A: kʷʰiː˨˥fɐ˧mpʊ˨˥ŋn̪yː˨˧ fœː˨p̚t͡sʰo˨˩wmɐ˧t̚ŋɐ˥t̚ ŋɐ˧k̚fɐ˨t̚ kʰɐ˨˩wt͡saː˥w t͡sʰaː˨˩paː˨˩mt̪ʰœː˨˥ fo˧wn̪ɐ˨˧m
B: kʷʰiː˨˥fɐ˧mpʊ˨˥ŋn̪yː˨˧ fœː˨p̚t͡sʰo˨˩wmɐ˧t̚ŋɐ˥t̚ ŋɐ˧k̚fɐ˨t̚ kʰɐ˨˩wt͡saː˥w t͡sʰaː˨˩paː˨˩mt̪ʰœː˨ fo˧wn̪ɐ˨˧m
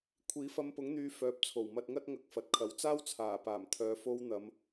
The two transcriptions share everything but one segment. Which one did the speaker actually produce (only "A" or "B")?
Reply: B